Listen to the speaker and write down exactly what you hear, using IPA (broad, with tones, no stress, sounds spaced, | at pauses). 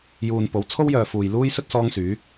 j uː˨ n p o˨˥ w t͡sʰ o˥ w j œː˨ f uː˨ j l uː˥ j s ɵ˥ t̚ s ɔː˥ ŋ s yː˨˥